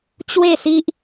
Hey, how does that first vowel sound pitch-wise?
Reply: falling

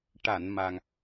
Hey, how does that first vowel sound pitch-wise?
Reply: low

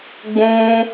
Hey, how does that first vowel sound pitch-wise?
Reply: high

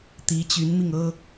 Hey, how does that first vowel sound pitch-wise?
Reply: rising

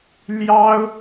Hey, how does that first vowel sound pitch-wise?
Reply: high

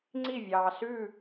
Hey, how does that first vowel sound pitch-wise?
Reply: falling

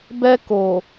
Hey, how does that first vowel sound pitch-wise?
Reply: high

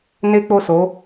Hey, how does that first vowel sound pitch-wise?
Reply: high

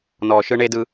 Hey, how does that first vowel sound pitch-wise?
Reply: low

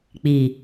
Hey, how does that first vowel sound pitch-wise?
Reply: low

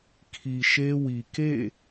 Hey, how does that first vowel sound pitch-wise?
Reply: low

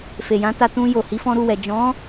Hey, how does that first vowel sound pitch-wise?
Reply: low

